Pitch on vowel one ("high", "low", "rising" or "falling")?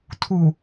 low